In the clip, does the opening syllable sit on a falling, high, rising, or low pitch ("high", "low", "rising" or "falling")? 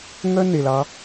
high